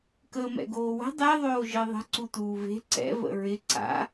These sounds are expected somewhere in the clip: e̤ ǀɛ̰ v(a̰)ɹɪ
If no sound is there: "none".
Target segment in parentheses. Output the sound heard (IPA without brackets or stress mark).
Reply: ə̰